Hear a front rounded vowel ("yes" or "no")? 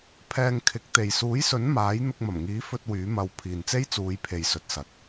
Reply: yes